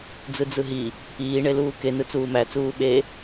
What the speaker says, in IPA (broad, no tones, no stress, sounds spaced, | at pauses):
d͡z ɯ d͡z ɯ ɦ i | iː ɳ e l uː k e n ɯ t͡s uː m æ t͡s uː ɓ e